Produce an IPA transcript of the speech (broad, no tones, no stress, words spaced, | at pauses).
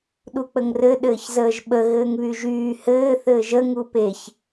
ɗuk͡pəŋrɘ ɗɘːçzəːʒɓə ɣɘːŋβyʒyː hɘː θɘːʒə ŋupeç